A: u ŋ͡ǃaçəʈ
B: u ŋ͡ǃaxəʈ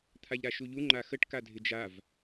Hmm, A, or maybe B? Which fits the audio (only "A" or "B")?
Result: B